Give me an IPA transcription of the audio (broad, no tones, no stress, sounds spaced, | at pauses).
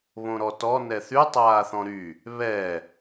β õ ɾ ɔ t ɔ n ɛ θ y tˤ aː θ ɔ̃ ɾ y | β ɛ